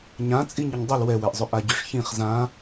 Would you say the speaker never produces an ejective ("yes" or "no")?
no